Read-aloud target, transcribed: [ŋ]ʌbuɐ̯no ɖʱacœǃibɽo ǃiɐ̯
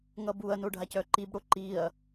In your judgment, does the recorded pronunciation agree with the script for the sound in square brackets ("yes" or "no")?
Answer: yes